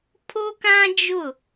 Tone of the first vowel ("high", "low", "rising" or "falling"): high